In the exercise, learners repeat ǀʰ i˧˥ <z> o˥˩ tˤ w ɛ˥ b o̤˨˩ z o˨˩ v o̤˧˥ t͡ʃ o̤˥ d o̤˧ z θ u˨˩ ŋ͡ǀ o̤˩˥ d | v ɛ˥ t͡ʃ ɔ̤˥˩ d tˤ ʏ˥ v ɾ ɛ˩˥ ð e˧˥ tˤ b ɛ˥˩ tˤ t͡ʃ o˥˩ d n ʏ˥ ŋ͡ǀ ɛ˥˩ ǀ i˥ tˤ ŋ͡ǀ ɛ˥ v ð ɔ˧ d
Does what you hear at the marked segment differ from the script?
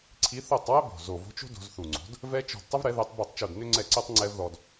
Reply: yes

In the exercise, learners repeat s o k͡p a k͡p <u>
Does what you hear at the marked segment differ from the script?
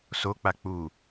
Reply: no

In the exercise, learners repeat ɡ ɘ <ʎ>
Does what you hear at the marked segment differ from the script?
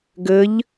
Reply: no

